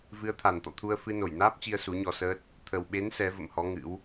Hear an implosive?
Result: yes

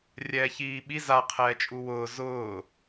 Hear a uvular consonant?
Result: yes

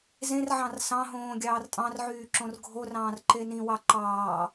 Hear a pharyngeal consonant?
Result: yes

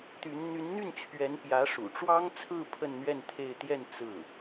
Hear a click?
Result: no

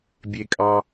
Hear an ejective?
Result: yes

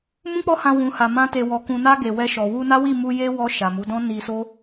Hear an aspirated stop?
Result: no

